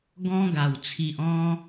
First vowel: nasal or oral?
nasal